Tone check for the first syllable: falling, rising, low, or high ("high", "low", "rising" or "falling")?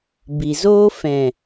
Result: low